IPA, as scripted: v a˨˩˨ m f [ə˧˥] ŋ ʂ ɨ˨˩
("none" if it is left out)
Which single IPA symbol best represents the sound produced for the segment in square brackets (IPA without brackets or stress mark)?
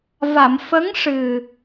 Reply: ə˧˥